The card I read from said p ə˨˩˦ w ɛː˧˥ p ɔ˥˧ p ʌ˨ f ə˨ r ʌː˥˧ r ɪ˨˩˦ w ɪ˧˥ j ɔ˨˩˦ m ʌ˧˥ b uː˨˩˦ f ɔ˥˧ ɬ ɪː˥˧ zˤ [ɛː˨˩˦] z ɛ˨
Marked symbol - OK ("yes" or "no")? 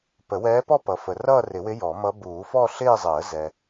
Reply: no